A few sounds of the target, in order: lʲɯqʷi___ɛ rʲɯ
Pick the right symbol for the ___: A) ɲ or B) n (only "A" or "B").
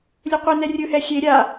B